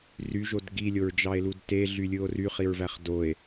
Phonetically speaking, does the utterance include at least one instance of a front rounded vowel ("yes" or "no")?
yes